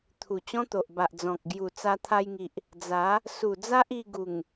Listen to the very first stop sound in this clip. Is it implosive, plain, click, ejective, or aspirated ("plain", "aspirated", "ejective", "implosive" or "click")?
aspirated